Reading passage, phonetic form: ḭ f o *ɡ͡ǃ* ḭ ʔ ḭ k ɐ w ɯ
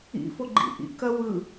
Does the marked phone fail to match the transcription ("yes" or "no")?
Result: no